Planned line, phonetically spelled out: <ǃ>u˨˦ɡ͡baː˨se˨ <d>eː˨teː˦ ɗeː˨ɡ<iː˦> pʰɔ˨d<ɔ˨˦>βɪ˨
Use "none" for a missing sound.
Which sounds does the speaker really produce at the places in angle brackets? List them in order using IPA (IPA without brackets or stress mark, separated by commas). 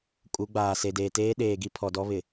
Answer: kʼ, d, i˦, ɔ˦